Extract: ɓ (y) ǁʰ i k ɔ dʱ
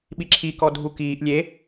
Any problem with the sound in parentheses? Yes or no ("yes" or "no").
yes